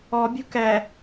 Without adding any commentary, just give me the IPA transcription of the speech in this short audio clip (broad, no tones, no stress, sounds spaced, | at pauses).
ɔ bʲ ṳ k ɛ